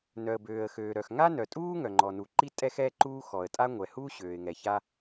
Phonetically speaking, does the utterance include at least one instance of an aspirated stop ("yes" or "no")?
no